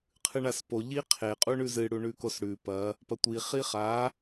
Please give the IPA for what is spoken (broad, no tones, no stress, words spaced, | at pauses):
qʰɨɳaspo ʎiqʰe qʼuɳʉzɨ ɽuɳʉkosɽʉ pɐ | pɐtʷi χiχa